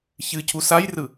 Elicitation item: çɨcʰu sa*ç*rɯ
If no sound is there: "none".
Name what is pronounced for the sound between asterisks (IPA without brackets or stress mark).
j